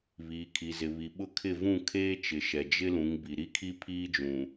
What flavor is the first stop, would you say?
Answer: aspirated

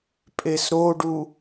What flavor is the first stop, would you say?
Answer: ejective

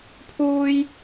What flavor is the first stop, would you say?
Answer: aspirated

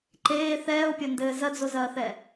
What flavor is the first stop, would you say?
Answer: click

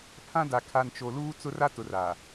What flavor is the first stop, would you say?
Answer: aspirated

